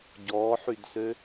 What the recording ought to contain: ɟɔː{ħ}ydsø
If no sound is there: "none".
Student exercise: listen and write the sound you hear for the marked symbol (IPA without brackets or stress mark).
ħ